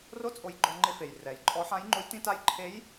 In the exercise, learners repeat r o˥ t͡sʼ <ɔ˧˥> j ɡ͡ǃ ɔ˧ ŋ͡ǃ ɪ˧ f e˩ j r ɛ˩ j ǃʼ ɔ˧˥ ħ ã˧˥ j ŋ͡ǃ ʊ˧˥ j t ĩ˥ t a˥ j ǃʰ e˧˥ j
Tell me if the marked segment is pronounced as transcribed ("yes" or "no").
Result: no